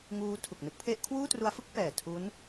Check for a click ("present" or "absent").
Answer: absent